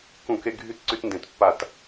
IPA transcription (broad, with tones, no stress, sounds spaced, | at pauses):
k ũ˧˩˧ k e˧ ɡʱ y˦˥ t ǀ y˧ t n d ẽ˩˧ t pː a˧˩˧ t